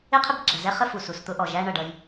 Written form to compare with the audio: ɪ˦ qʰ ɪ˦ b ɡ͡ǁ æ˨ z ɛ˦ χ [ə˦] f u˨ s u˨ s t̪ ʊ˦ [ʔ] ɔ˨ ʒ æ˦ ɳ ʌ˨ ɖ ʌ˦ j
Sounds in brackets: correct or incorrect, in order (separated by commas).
correct, correct